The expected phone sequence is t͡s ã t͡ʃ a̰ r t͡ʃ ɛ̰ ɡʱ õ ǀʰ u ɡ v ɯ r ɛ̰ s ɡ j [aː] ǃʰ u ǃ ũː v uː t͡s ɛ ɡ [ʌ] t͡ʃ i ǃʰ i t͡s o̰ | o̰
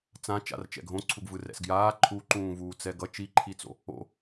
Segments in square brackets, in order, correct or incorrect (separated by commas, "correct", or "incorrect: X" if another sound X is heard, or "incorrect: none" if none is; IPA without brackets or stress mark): correct, correct